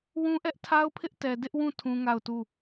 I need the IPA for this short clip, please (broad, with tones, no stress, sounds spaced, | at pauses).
w ũ˦ ʔ ɛ˦ ʔ tʰ a˦ ʊ̯ pʰ ɪ˦ ʔ t ɛ˨ d ɪ˦ ʔ w ũ˦˨ tʰ ũ˦ ŋ a˦˨ ʊ̯ t u˦˨